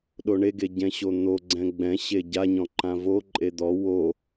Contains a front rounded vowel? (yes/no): no